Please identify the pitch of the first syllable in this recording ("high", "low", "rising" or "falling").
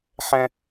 high